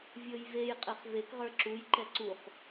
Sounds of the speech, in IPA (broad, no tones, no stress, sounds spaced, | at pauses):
vʲ ɤ j v e j qʼ ɛ χ v e k ʁ ə˞ ǁ u j ǃ ɛ ǀ u χ